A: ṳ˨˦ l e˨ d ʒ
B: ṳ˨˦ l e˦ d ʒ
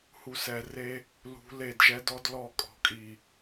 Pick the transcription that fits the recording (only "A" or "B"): A